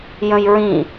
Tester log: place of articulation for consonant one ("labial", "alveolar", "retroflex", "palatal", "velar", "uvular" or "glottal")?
palatal